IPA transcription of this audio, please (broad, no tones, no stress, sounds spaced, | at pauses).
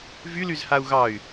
v y l y z h a u̯ ɣ ɑ y̯